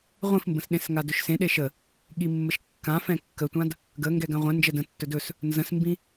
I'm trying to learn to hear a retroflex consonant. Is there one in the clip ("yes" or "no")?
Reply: no